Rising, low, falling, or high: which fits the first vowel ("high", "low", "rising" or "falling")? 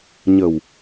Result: low